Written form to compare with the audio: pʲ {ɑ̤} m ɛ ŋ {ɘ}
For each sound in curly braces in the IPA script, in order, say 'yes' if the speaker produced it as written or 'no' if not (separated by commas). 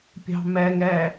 yes, no